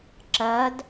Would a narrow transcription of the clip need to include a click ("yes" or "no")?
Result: yes